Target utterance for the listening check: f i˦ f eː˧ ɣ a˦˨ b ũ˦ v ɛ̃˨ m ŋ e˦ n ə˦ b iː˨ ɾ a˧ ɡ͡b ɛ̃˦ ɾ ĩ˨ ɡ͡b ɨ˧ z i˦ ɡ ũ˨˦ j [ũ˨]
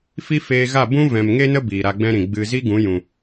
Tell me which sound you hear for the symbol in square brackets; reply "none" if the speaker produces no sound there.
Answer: ũ˨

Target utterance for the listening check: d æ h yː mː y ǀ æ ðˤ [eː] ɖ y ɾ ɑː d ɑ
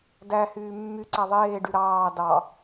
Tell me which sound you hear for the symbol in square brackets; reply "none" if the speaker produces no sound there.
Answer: eː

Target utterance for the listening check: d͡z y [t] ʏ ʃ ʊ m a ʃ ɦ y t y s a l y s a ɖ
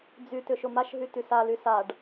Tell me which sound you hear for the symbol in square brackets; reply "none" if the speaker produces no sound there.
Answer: t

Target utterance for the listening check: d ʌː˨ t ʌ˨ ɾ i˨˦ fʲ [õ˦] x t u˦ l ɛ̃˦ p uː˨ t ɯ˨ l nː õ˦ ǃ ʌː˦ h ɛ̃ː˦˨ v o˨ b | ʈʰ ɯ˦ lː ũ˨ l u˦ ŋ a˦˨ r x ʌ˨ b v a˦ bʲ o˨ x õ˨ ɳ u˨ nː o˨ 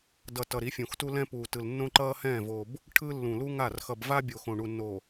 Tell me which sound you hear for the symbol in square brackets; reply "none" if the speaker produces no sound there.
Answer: õ˨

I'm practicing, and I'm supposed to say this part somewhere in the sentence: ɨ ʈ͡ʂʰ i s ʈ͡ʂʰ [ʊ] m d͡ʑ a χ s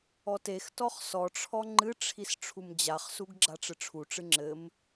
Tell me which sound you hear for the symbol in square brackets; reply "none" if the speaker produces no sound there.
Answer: u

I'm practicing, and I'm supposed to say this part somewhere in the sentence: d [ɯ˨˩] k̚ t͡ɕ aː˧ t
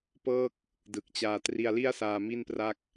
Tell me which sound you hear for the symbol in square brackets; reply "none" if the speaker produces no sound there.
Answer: ɯ˨˩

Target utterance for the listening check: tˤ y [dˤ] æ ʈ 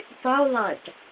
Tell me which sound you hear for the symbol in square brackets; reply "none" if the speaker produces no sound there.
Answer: ðˤ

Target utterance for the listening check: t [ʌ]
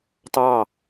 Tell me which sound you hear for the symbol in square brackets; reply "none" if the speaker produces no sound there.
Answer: ɑ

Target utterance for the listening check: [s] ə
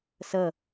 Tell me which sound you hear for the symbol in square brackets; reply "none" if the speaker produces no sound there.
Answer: s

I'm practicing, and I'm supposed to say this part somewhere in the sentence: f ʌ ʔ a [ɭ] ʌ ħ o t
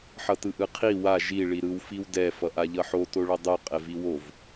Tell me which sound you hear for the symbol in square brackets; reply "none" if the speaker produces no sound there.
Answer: ʎ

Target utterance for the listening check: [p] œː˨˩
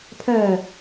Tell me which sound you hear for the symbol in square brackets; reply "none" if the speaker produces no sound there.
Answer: pʰ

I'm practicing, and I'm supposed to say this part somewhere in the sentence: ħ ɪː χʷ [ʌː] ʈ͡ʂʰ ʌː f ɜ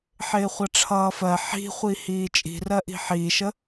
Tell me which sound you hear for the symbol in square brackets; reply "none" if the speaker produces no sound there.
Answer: ʌ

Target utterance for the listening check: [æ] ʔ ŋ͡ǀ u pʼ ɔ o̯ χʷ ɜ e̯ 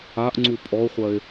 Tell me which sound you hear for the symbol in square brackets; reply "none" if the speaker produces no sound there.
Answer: a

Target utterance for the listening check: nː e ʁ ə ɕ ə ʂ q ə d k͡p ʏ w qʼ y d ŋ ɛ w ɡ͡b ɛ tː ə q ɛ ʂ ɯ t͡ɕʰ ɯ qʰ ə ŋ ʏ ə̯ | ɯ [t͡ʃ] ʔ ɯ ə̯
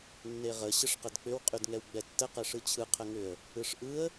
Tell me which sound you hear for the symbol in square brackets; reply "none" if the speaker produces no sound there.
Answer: ʂ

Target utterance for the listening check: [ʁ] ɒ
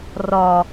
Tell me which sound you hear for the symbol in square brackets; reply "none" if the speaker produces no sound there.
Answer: r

